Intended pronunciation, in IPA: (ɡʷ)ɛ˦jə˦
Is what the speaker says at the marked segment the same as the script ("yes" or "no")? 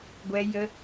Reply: yes